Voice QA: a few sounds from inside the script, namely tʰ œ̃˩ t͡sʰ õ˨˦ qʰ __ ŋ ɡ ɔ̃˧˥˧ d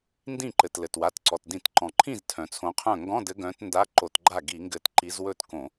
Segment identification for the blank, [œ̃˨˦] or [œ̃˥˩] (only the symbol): œ̃˥˩